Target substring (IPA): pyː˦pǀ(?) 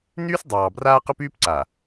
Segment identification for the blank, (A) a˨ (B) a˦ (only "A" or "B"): A